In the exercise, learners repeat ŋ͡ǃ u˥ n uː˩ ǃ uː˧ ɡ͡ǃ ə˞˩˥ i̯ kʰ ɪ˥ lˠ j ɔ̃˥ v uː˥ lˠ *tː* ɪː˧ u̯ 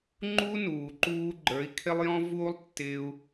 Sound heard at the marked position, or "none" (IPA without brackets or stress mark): tː